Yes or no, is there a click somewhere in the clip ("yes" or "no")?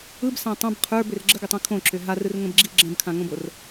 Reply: yes